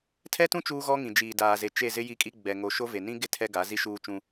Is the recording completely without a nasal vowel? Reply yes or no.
no